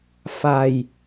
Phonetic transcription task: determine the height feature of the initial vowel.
low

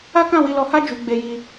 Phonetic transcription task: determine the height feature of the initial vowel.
low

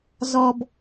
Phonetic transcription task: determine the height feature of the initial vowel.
mid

